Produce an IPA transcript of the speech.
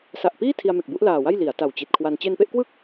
s a˨˩ ʔ p iː˥˩ tʰ i˧ a̯ m e˨˩ k̚ b u˦˥ ʔ l aː˨˩ w a˥˩ j l i˩˦ a̯ t a˨˩ w t͡ɕ i˨˩ t̚ kʰ w a˧ n t͡ɕ e˧ n p e˥˩ ʔ k w ɯ˥˩ k̚

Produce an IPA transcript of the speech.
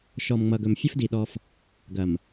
ʃ ɔ˨ m ŋ͡m ʌ˨ ɡ ɵ˨ m fʲ ɐ˦ f d i˨ ɗ ɔ˦ f | ɡ ɐ˨ m

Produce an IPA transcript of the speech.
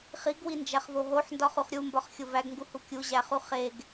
χ i ɡ w i n d͡ʒ æ χ v o ɦ o ħ n d ɒ χ u χ ɾʲ u m b ɒ χ xʲ o v æ ɡ ŋ ɡ u h u kʲ u ʑ æ χ u χ e ɡ

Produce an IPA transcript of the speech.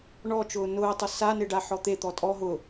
ɳ ɔ t͡ʃ ʊː n ʊː tˤ ʊ s a n e ɖ a ħ ɔ t̪ e t̪ ɔ tʼ ɔ ɦ ʊ

